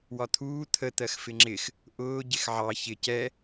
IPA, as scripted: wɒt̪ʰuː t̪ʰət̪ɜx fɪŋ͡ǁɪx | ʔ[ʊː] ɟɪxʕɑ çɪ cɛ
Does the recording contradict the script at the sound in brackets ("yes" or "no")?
no